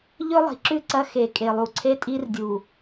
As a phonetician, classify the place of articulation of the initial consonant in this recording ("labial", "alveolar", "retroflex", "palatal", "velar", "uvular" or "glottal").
palatal